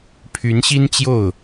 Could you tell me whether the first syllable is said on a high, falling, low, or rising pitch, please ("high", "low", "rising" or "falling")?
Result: rising